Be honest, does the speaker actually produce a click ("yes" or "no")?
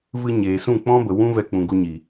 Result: no